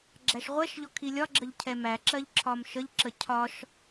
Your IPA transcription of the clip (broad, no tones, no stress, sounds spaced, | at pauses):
ɡ͡ǁ æ ʃ ʁʷ ɛ ʃ ʎ ɔ kʰ i lʲ ɒ ɡ͡ǁ ə ʎ cʰ ɛ m æ ǁ ɜ ʎ ǁʰ ɒ m ʃ ə ʎ ǁ ə cʰ ɒ ʃ